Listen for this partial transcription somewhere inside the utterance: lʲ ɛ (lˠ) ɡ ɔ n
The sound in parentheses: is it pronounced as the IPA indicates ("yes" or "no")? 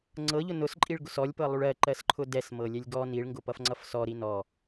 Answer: no